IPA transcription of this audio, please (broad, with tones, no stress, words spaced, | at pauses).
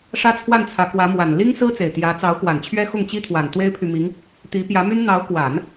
ʂä˥t͡sʰwa˥˩nt͡sʰä˧˥ kwä˧˥ mwa˨˩n li˥ŋsɹ̩˥ t͡se˨˩ɪ̯t̪jä˧˥ t͡sɑ˧˥ʊ̯kwa˨˩nt͡ɕʰɥɛ˥ xʊ˥˩ŋt͡ɕi˥t̪ʰwa˨˩n t̪we˥ɪ̯pʰy˨mi˧˥ŋ | t̪i˧˥pjä˧˥my˥n n̪ɑ˧˥ʊ̯kwa˨˩˦n